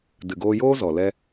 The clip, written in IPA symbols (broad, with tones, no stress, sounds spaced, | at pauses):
d ɨ˨ ɡ oː˧ j oː˦ z ɔ˨ l ɛ˦